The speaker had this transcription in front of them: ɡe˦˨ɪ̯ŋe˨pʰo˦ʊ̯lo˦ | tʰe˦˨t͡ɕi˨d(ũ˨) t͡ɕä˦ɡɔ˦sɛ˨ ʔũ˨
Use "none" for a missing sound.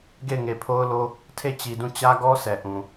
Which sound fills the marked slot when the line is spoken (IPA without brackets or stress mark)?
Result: ũ˦˨